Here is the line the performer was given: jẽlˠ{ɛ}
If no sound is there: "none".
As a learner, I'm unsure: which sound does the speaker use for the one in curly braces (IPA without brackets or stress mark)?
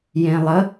ə